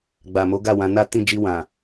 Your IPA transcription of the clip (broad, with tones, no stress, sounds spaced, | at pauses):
ɡ͡b a˨ m o˨˦ ɡ a˦˨ w ã˨˦ n a˦ t ĩ˦˨ d͡ʒ i˧ w ã˨